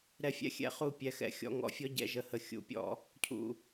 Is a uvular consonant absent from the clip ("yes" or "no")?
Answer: no